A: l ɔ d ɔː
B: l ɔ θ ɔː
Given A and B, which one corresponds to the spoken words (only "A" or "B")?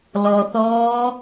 B